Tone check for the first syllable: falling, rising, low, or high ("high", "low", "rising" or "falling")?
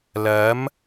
rising